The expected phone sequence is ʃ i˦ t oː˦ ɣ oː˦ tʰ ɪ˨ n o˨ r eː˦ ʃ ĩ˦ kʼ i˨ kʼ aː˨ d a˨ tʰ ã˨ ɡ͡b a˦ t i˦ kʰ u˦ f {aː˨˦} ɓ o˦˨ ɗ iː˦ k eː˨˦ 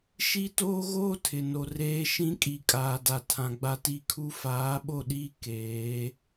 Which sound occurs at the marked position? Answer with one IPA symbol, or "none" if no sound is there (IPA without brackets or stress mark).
aː˨˦